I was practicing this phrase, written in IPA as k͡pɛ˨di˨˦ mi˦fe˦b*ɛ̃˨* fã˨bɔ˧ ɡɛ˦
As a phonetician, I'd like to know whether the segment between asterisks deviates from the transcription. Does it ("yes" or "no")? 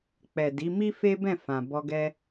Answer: yes